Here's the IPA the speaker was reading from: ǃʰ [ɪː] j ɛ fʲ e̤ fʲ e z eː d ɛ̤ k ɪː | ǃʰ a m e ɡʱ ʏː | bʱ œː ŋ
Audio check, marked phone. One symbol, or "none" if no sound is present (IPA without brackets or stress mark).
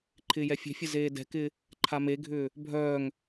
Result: ɪː